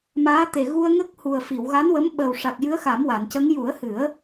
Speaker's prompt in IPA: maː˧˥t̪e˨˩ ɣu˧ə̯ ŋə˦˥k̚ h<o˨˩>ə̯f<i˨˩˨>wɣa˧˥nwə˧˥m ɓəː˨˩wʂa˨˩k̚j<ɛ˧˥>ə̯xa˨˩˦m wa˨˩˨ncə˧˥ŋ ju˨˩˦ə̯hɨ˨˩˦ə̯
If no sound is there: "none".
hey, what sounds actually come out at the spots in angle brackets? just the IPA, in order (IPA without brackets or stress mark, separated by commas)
u˨˩, i˨˩˨, ɨ˧˥